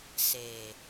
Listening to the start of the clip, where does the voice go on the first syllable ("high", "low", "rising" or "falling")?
low